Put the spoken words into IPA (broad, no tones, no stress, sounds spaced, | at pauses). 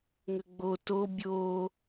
ŋ ʏ ɡ͡b o t o bʲ o